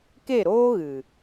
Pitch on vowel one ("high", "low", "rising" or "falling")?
falling